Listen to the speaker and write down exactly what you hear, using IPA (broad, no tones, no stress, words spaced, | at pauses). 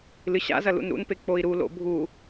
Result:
lɨɕa̰zɐ lṵnɾṵnpe k͡poi̯ɾulo̰ bʱu